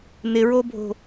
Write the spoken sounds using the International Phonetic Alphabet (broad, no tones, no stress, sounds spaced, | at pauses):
n ɪ ɹ o bʱ o̤